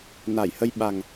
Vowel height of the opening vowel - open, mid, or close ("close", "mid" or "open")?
open